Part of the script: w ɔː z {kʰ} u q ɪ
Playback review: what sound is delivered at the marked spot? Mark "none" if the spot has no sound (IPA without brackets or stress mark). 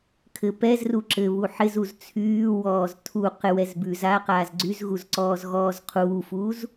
tʰ